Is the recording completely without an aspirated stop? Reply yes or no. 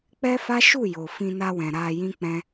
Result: yes